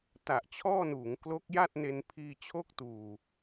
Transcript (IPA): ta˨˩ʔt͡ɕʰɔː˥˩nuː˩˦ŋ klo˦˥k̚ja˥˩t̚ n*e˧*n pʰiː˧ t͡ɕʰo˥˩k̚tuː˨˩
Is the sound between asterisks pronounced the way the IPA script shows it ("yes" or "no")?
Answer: yes